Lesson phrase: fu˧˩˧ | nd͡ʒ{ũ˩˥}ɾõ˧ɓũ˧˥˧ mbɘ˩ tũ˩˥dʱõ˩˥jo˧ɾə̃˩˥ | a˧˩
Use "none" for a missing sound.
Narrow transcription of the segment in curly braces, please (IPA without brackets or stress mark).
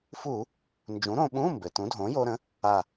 ũ˩˥